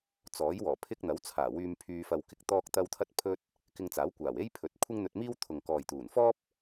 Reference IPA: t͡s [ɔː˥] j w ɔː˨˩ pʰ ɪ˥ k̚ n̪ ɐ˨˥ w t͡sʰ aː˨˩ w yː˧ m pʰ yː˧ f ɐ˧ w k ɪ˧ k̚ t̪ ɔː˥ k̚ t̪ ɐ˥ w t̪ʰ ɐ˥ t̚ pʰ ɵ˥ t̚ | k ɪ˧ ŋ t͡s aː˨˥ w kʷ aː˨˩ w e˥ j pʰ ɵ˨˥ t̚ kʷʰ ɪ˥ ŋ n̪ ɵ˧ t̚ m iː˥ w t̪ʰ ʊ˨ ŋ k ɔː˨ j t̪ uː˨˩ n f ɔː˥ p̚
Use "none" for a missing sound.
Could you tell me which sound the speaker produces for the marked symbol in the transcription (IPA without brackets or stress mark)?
ɔː˨˥